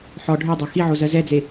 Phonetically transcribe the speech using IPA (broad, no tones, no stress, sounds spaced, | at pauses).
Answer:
ħ ɔ ɖʱ ø dˤ ø x i ʕ o z ɜ z ɛ d͡z e